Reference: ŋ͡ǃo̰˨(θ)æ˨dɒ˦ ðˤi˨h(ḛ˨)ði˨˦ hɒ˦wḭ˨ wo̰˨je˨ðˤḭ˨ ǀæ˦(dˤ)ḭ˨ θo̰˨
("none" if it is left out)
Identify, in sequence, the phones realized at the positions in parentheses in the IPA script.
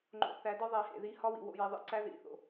θ, ḛ˨, ð

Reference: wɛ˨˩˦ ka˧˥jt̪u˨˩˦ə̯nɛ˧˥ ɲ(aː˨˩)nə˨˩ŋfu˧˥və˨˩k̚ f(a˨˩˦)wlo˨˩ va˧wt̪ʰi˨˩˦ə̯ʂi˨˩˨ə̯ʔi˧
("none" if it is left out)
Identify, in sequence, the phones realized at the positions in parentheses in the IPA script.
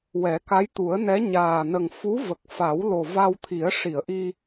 aː˨˩, a˨˩˦

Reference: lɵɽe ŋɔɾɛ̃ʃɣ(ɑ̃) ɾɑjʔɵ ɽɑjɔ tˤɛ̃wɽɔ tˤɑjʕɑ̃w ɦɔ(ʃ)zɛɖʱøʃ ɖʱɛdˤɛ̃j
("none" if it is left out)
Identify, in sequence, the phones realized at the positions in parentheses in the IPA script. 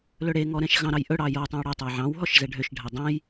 ɑ̃, ʃ

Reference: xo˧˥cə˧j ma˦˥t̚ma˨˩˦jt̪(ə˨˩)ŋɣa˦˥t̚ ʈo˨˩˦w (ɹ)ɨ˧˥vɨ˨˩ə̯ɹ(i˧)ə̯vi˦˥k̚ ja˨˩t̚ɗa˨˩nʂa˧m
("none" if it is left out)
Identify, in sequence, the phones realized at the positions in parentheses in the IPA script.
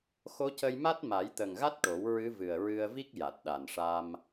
ə˨˩, ɹ, ɨ˧

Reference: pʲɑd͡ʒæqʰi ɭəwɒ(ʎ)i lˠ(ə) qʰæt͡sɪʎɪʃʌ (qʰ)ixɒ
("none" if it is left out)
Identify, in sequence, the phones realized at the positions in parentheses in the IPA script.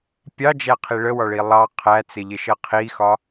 ɭ, ɑ, qʰ

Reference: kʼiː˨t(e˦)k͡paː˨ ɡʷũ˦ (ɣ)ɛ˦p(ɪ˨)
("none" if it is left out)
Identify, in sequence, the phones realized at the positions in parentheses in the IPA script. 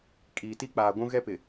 i˦, ɣ, ɪ˨

